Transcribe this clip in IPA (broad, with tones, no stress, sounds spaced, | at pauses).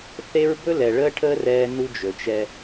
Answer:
θ e˦ ɹ b ɵ˦ l ɛ˨ ɭ əː˦ ʈʰ əː˦ r ɛː˦ n u˦ d͡ʒ ɵ˨ t͡ʃ ɛ˦